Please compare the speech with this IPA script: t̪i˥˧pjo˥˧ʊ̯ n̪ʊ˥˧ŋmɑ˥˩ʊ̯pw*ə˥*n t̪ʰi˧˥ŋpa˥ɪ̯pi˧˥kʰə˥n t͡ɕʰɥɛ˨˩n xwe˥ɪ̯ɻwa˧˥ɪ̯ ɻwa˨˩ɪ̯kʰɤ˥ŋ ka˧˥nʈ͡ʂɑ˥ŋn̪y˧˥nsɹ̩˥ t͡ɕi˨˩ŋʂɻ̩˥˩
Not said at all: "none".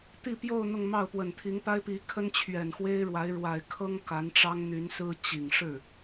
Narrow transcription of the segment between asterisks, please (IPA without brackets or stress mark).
ə˨˩